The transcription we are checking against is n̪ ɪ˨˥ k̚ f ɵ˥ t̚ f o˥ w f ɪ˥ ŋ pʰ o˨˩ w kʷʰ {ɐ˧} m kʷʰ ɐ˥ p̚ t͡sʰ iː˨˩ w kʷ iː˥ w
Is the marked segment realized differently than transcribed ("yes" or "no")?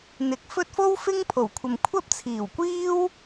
yes